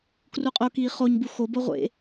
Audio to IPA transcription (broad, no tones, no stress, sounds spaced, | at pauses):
k r u qʼ o k iː χ o ɲ b u x o b o ʁʷ ḛ